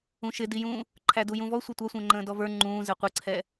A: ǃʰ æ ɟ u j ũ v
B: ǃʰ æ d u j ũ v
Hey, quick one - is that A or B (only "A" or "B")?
B